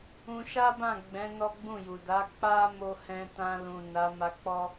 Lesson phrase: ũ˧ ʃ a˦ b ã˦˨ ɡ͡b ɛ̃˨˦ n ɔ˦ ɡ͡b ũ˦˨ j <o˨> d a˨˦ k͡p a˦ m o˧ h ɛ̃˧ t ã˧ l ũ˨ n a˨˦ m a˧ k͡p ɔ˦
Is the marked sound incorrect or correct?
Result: incorrect: u˨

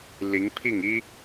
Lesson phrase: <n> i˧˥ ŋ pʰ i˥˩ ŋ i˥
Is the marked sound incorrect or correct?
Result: incorrect: l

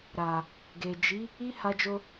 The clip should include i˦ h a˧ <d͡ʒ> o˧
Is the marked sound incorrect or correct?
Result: correct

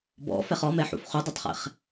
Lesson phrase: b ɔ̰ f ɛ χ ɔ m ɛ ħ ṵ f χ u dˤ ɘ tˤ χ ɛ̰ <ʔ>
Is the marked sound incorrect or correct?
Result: incorrect: χ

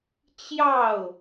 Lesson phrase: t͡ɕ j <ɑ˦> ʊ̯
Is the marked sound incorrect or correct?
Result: incorrect: ɑ˥˨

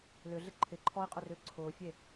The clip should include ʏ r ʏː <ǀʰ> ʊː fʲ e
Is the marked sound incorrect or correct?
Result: correct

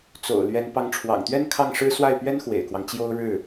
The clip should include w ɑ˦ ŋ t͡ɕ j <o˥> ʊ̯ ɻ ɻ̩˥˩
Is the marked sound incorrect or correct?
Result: correct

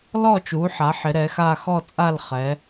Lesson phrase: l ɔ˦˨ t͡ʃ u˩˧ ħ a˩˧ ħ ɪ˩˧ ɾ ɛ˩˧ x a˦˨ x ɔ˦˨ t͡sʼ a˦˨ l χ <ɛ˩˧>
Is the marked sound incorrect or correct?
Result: correct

